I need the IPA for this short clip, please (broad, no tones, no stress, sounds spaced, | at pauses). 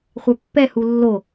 χʷ œ pː ɛ h u lː o